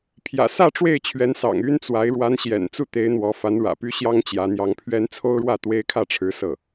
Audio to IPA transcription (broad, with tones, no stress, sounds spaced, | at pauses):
pʰ j ä̰˨˩ s ä˥˧ ʈ͡ʂ w e˥˩ ɪ̯ t͡ɕʰ ɥ ɛ˧˥ n s ɑ̰˨˩ ŋ y˥ n t͡s w a˧˥ ɪ̯ ɻ w a˧˥ n ɕ j ɛ̰˨˩ n t͡s u˥˩ t̪ e˧˥ ɪ̯ n̪ w ɔ˧˥ f a˧˥ n ɻ ä̰˨˩ p y˥ ɕ j ɑ˥ ŋ t͡ɕ j ä˧˥ n̪ j ɑ˧˥ ŋ pʰ ɥ ɛ˥ n t͡sʰ o˥ ʊ̯ ɻ w ä˥˩ t̪ w e˥ ɪ̯ kʰ ä˥˩ ʈ͡ʂʰ ɻ̩˧˥ s ɤ˥˩